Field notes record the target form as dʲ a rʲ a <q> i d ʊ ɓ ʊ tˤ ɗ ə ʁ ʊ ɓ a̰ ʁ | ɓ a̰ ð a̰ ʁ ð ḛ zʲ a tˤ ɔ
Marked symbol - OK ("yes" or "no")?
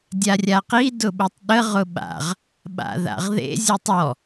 yes